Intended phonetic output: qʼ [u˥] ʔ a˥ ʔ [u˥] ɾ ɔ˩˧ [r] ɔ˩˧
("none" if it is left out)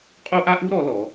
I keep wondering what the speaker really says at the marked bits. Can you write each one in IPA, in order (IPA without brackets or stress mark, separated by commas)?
u˥, u˥, l